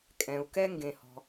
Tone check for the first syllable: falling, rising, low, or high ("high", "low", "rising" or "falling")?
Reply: low